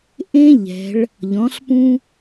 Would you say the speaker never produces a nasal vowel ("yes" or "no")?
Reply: no